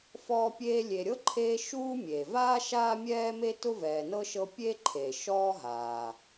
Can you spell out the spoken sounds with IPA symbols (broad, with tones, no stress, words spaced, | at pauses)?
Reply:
fɔː˦pʲeː˦ lʲe˨ɾʲɤ˥ǃʰeː˦ ʃuː˥ mʲe˩vaː˥ ʃaː˥mʲɛː˥me˥ tʊ˥vɛː˨nɤ˥ʃɤ˦ pʲe˥ ǃʰe˩ʃɔː˦ ɦaː˩